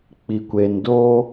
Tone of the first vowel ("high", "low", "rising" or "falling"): low